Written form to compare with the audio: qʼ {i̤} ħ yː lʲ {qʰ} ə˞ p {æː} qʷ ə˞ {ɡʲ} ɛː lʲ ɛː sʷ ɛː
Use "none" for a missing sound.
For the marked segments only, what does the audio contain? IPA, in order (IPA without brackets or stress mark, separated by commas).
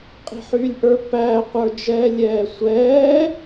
i̤, ʔ, æː, d͡ʒ